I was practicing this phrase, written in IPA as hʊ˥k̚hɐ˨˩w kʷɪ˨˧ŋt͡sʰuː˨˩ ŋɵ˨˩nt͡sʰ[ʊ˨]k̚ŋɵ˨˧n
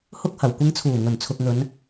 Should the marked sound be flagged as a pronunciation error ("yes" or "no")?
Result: no